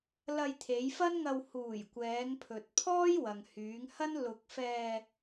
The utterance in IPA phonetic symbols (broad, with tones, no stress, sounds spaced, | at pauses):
l ɐ˧ j t̪ʰ e˨˧ j f ɐ˥ n ŋ ɐ˧ w h uː˨˩ j kʷ ɛː˨˧ ŋ pʰ ɵ˨ t̚ pʰ ɔː˥ j w ɐ˨ ŋ h yː˨˧ ŋ h ɐ˥ n l ʊ˧ k̚ f ɛː˧